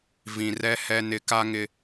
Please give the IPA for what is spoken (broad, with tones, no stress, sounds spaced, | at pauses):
v ĩ˨ r ɛ˦ h ɛ˦ n ɪ˨ k a˦ ŋ ɪ˦